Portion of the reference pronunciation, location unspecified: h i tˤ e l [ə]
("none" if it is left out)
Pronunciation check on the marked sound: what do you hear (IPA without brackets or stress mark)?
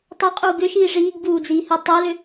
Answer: ʏ